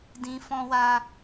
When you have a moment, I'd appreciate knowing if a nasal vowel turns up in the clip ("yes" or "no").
yes